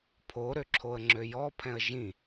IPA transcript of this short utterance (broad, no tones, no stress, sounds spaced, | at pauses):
pʰ o ɾ ø ǁʰ o ə̯ ŋ͡ǁ ø j ɔ pʰ ɛ̃ ə̯ ʒ ĩ